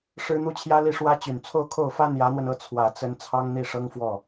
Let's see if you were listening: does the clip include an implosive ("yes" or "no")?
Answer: no